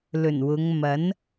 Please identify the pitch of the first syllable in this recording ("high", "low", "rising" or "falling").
low